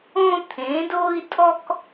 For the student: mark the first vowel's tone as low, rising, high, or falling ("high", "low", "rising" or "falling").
high